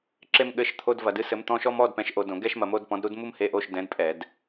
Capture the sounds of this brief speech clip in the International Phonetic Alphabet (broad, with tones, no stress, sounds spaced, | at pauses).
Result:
ǁ e˥ m ɠ ɘ˧˥˧ ʃ t̪ʰ o˧˥˧ d v ɐ˧˩˧ d ɨ˥ s ɘ˨˥ m t̪ ɔ̃˧˥˧ ʃ ɔ˥ m ɔ˧˥˧ d p ɛ̃˨˥ ʃ ʔ o˧ d õ˧˩˧ ɡ ɛ˥ ʃ m ɐ˧ m o˧˥˧ d p ɔ̃˨˥ d ɾ u˥ d m u˥ m h e˧˥˧ ʔ o˧˥˧ ʃ d ɛ̃˨˥ d pʼ ɛ˧˩˧ d